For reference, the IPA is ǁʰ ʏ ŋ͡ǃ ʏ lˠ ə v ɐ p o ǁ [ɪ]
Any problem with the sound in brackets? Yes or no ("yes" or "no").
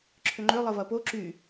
yes